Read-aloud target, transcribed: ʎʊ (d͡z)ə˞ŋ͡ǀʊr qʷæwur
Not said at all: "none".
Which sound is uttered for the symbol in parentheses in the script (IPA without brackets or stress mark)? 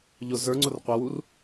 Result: z